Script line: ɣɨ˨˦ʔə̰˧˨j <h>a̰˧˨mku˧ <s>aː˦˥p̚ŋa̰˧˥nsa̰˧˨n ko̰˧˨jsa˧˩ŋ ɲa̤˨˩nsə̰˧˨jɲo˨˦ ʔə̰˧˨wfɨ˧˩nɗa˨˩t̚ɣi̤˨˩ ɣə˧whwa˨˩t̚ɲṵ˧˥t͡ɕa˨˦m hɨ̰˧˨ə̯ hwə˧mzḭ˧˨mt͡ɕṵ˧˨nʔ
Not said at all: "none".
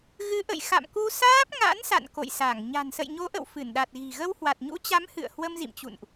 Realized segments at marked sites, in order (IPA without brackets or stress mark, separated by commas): x, s